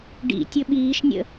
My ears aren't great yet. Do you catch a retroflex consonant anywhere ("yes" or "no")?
yes